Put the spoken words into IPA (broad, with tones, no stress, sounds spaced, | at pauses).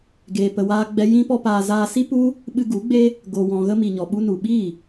ɡ eː˧ p ə˧ w aː˦ ɡ͡b ɛ˦ j ĩ˦ p ɔ˦ p aː˧ z aː˧ s i˦ p u˦ | ɓ ɨ˧ ɡ u˨˦ ɡ͡b e˦ | ɡ o˨ w ɔ̃˨ ɣ ə˧ m i˨ ɲ ɔ˨ ɓ u˧ n u˨ ɓ i˦˨